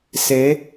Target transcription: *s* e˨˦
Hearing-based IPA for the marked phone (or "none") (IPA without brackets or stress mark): s